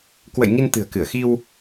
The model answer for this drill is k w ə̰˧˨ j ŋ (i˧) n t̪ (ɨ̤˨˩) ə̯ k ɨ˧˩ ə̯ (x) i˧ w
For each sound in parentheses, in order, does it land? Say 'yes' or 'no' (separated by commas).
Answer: yes, yes, yes